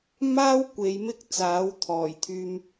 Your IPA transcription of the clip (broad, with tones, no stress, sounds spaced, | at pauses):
m aː˥ w kʷ e˨˧ j m ɪ˥ k̚ t͡s aː˨˥ w t̪ʰ ɔː˨˩ j t̪ʰ yː˧ m